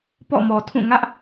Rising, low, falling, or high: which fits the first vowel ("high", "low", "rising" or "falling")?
falling